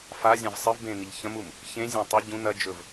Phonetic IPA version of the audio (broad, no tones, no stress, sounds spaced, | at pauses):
f a zʲ ã v sˤ ɨ v b ẽ n i ʎ ç ɐ̃ m u m | ç ẽ zʲ ã tˤ ɵ ɟ ũ n ɐ d͡ʒ ɵ v